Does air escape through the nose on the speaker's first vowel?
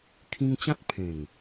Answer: yes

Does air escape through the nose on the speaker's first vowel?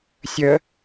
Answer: no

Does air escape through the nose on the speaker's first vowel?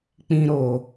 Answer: yes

